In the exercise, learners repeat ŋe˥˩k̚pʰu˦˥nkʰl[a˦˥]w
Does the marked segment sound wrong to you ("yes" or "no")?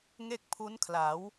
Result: yes